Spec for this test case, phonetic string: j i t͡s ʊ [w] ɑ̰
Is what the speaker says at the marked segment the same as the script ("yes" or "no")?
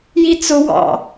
yes